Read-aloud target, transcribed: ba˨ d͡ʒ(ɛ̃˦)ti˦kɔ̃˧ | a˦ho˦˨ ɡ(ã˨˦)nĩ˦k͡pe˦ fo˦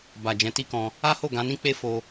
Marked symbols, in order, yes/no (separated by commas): no, yes